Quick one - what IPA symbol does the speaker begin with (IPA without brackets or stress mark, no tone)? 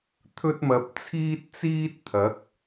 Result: t̪ʰ